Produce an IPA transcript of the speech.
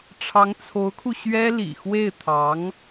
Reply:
ʈ͡ʂʰ ɑ˧˥ ŋ t͡sʰ o˧˥ ʊ̯ kʰ u˧ ɕ ɥ ɛ˥ l ḭ˨˩ x w e˥˩ ɪ̯ t̪ʰ ɑ˧˥ ŋ

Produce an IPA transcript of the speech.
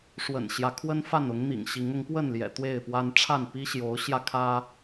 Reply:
ʂ w ə̰˨˩ n ɕ j ä˦ kʰ w ə˦ n f a˥˨ n ʊ˨˦ ŋ n̪ ḭ˨˩ ŋ ɕ i˨˦ ŋ ʊ˨˦ ŋ p w ə˥˨ n l j ɛ̰˨˩ t̪ w e˥˨ ɪ̯ p w a˦ n ʈ͡ʂʰ a˥˨ n p i˦ ɕ j o˨˦ ʊ̯ ɕ j ä˧ kʰ ä˦

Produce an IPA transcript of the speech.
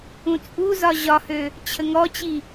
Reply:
ũ t͡sʼ u z ɒ ʑ ɒ h ø | t͡ɕʰ ə ŋ ɔ t͡ɕ i

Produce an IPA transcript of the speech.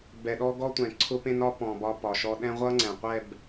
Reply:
b ɛ˨ ɗ ɔ˦ ɡ ɔ˦ tʷ ɛ̃˨ ǀʰ ʊ˦ p ẽ˦ n ɒ˦ p ɔ̃˨ b ɒ˦ p ɒ˨ ʃ ɔ˦ ɗ ɛ̃˦ ʁʷ ʌ˦ ŋ͡ǀ ɛ̃˨ qʷ ɛ˦˨ b

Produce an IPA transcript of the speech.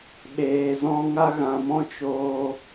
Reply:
ɓ eː˨ z ɔ̃˧ ŋ a˧ ɣ ã˨ m ɔ̃˧ t͡ʃ o˧

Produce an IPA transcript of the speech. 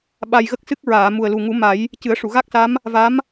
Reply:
ɓ a˧ j ɣ ə˦˥ k̚ s ɨ˦˥ k̚ ɹ aː˨˩˨ m u˨˩ ə̯ l u˨˩ ŋ u˨˩˦ m a˨˩˦ j | c ɨ˨˩˦ ə̯ ʂ u˨˩˨ ɣ a˦˥ k̚ s a˧˥ m | v a˧˥ m

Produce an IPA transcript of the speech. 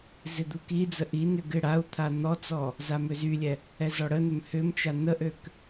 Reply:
z ɪ d̪ u k i d͡z ə ʔ i n ʏ ɡ ɪ ɽ a u̯ t̪ʰ a n̪ ɔ t͡s ɔ | z a m ø z y lʲ ɛ | ɛ z ɔ ɽ ə n ʏ m h ʏ m t͡ʃ a n̪ ə ʔ ø k

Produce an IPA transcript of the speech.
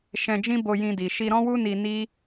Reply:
ʃ ɛ̃˧ d͡ʒ ĩ˦ b o˧ j ĩ˧ d i˨ ʃ i˧ ɾ ɔ̃˦ w u˦ n i˧ n i˦

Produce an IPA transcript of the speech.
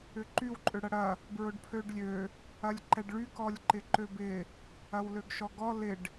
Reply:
ʏ ǃ y w ǃʼ ø ɽ ɐ ɽ ɐ | b ɹ ʊ ɖ pʰ ø ɖ lʲ ø | ɐ lʲ ǃ ɛ ɖ ɭ y k ɔ lʲ ǃ ɪ ǃ ø b ɪ | ɐ w l ø ɡ ʃ ɔ ɡ ɔ l ɪ ɖ

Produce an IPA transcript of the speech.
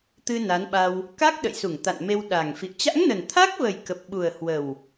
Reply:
t̪ ɨ˧ n a˨˦ n ɓ a˧ w | k a˦˥ k̚ ɗ ə̰˧˨ j s u˧˩ ŋ t̪ a̰˧˨ n m e˧ w ɗ a˨˩ ŋ f ḭ˧˨ ə̯ t͡ɕ a̰˧˥ ŋ n ə˨˩ n t̪ʰ a˦˥ k̚ v ə˨˩ j k ə˨˩ p̚ ɓ u˨˩ ə̯ h w ə˨˩ w

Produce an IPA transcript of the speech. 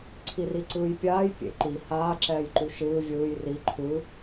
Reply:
ǀʰ i r i ǀ ɯː j pʲ aː j pʲ ḛ ǃ i h aː ǁ ɛː j ǃ u ʃ ɯː vʲ ɯː j r i ǃʰ ɯ

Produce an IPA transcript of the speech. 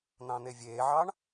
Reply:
n̪ ɑ̃ n̪ e vʲ eː ʕ ɑ ɳ

